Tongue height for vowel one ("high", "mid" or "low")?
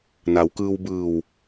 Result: low